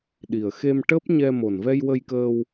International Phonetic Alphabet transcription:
ɗi˨˩ə̯xe˧mʈəː˦˥p̚ ɲɛ˧ mo˨˩nvɛ˧j wə˧jkəː˧w

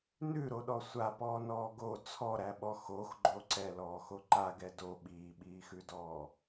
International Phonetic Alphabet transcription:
nʉɾoɗɔ sʷapɔːnɔː ɡo t͡sʰɔɾæɓɔ xoxɡ͡ǃo ǀɛlɔːxo ǃaɡɛ do ɓiːɓiːxʉdɔː

